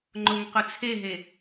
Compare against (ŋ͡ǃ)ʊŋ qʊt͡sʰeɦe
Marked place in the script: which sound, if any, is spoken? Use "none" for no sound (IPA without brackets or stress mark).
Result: ŋ͡ǃ